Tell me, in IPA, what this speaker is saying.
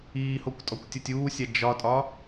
iːhokʷtʼɔkʷtʲotʲ uːsʲa d͡ʒɒtʼɒ

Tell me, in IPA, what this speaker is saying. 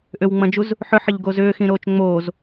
ʔʏwŋ͡mɐ̃d͡ʒuz | ħʏħəʎɡo zʏːxĩɾoːt͡ʃ ŋ͡moːz

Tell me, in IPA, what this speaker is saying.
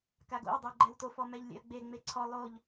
kaɡo̰w dˤɘwɡ͡ǃɛwto fɔmɛʎlʲɛ̰ɐ̯ɡ͡be ŋ͡meǀʰɔ lˠoʎ

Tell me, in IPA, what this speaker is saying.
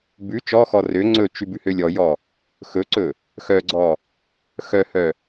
bʉ t͡ʃɔxɔ rø ŋ͡ǀɵt͡ʃʉ bʉhølʲɔjɔ | xɵǀɵ | xœɡ͡ǀɔ | xœhœ

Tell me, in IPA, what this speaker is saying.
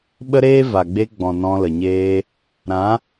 ɓə˦ɾeː˦ va˨ɡ͡be˧ɡ͡bɔ̃˨ nɔ̃˧lə˨ɲeː˧ | ɾã˨˦

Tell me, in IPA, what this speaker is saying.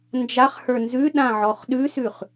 nd͡ʒaχhə˞ nzʉɗã ʕɔχɗʉsʉχ

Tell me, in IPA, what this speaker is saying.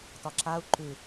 tɒǁau̯ ǃʉ

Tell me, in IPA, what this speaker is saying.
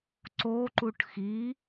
ǀo ǃuʈxi

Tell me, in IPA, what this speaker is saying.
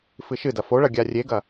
fɨʃɨdɐ foɭɐ ɡʲarʲeɡɐ

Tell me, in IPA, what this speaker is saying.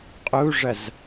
qʼuʐɐz

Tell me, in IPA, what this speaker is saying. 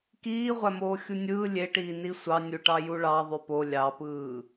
kiːʁʷæmoː xʲunʲɯː lʲeʈiːni sʷɑnʲuʈɑ juɭɑ ðˤypo lʲɑpɯː

